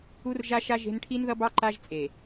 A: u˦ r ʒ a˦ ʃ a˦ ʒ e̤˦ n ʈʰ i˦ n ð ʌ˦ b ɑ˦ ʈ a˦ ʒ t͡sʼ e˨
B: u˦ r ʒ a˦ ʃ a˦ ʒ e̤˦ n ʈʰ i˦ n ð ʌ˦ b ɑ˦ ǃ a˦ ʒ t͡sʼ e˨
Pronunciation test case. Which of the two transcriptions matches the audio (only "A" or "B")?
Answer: B